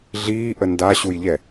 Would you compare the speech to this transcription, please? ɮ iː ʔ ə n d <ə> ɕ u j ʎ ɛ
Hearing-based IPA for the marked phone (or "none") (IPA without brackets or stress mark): a